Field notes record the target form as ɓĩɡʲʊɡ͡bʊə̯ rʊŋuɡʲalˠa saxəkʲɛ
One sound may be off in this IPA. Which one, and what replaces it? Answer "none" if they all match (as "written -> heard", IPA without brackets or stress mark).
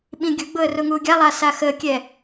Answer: none